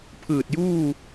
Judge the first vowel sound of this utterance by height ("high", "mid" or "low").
high